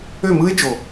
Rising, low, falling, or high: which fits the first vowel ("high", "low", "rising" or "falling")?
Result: falling